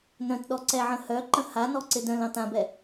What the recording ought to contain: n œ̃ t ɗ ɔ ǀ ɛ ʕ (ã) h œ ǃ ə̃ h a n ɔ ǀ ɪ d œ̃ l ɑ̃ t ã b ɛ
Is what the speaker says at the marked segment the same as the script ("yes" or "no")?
no